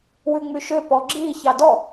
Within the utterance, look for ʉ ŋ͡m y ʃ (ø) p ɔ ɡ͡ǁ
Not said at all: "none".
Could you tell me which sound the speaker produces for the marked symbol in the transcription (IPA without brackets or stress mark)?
ø